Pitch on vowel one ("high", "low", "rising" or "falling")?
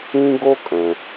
high